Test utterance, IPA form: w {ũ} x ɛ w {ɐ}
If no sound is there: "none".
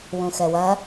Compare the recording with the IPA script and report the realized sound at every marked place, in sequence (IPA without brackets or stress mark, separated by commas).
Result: ũ, ɐ